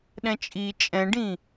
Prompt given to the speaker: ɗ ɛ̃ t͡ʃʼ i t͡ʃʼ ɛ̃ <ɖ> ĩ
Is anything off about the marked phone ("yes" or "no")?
no